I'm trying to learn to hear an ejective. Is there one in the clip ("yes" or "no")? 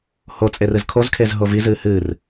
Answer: yes